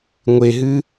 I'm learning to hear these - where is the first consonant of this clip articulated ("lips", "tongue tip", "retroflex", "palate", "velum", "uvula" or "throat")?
velum